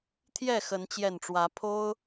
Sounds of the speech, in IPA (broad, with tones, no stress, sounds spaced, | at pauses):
t̪ʰ j ɛ˥˨ x ə˨˦ n t͡ɕ j ɛ˨˩ n ʈ͡ʂ w ä˨˦ pʰ o˦ ʊ̯